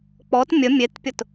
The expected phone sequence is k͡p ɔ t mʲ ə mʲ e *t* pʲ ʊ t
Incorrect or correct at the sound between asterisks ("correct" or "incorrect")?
correct